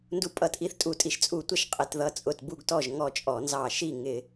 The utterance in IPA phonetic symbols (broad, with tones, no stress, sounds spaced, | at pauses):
n d u˨˥ pʼ ʌ˧˩˧ t ʔ i˧˩ θ tʼ u˧˩ tʼ i˧˩ ʃ t͡sʼ u˧˩ tʷ ʌ˥˧ ʃ qʼ ɪ˩˧ t ð ʌ˨˥ t͡sʼ ʊ˧˩ t b u˥˧ ɡ t ɔ˥˩ ʒ ŋ ɔ˥˩ t͡ʃʼ ɔ˧˩˧ n z ɑ˧˩ ʃ i˥˩ ŋ ɪ˧˩˧